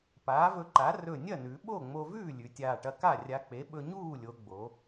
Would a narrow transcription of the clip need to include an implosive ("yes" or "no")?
yes